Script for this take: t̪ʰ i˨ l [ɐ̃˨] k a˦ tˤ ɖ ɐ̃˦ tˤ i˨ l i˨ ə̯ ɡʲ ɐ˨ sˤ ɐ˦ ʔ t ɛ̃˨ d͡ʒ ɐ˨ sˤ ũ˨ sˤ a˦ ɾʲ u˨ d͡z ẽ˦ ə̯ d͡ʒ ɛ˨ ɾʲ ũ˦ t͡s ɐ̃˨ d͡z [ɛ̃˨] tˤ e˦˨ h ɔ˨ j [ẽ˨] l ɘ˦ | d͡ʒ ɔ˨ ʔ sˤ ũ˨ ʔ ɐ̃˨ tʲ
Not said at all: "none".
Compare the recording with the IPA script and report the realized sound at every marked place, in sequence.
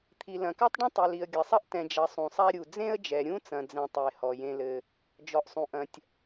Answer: ɐ̃˨, ɛ̃˦, ẽ˦

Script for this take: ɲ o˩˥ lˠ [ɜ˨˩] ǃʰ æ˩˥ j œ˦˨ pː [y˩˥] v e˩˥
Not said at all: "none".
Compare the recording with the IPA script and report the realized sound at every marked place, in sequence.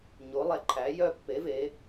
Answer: ɛ˨˩, e˩˥

